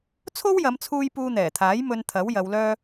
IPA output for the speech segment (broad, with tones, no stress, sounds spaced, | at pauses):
t͡sʰ o˥ w j ɐ˨˧ m t͡sʰ uː˧ j p uː˧ n̪ ɛː˨˩ t̪ʰ aː˨˥ j m ɵ˧ n t̪ʰ ɐ˨˥ w j ɐ˨˧ w l œː˥